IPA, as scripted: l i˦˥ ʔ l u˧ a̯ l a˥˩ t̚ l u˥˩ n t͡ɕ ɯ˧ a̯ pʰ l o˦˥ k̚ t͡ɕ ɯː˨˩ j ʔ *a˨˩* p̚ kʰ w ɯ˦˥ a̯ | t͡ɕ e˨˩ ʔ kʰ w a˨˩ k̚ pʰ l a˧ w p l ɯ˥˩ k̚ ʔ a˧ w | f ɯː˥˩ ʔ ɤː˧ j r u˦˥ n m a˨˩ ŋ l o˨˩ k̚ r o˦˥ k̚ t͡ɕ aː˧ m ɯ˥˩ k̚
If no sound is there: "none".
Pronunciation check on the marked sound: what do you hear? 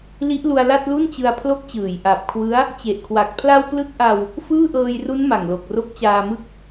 a˨˩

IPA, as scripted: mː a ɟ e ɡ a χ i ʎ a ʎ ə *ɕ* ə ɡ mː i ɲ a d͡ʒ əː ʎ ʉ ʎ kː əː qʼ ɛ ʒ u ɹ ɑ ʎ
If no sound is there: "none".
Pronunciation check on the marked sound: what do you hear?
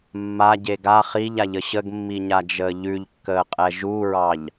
ɕ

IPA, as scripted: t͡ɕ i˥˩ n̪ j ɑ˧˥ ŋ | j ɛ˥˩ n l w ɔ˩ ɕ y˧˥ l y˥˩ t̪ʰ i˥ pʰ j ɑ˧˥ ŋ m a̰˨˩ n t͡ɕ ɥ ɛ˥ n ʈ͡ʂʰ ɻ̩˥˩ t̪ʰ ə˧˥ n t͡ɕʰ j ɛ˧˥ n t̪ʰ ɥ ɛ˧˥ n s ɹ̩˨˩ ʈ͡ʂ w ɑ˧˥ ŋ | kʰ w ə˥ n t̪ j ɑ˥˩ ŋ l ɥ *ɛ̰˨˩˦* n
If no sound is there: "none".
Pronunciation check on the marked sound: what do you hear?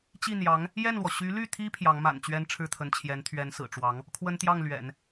ɛ̰˨˩˦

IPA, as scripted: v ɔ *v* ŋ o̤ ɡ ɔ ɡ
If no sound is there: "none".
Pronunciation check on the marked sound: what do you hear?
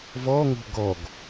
none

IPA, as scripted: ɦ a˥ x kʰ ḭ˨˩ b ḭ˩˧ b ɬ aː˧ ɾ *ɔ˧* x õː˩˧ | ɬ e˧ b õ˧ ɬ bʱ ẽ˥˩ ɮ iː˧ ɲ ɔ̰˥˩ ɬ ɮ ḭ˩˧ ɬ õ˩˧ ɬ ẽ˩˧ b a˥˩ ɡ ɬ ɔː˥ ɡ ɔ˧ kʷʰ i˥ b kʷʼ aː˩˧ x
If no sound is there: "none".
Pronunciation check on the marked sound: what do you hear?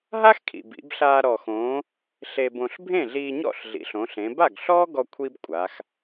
ɔ˨˩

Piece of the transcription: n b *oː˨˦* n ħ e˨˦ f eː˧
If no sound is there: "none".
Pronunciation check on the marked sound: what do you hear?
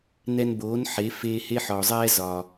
oː˨˦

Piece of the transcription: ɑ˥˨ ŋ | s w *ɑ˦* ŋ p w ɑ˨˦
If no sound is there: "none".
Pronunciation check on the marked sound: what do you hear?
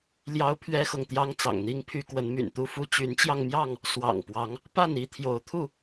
ɑ̰˨˩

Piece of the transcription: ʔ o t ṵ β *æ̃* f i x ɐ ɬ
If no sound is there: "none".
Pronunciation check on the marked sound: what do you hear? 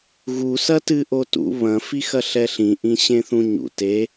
ɐ̃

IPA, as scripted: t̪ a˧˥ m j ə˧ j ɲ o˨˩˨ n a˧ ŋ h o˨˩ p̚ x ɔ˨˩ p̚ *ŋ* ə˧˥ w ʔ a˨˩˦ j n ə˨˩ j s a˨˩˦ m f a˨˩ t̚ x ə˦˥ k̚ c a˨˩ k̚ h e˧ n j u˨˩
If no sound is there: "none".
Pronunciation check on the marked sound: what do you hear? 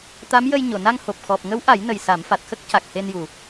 ŋ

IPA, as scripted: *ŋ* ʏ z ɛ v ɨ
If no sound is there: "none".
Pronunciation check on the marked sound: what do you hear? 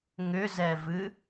ŋ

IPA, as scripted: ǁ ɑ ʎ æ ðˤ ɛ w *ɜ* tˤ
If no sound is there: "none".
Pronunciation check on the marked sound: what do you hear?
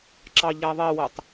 ɜ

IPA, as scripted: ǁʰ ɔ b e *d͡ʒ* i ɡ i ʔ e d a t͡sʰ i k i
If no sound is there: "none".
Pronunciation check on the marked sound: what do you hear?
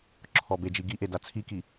d͡ʒ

